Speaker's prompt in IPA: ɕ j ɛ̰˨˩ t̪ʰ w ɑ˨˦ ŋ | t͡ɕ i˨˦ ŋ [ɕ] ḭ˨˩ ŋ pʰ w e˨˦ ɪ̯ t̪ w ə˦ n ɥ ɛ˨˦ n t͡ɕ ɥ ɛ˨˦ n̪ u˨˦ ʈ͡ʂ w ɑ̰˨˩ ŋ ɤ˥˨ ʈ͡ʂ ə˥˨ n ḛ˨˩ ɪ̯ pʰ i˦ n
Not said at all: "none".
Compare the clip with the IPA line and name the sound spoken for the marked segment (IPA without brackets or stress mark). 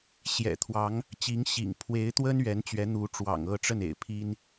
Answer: ɕ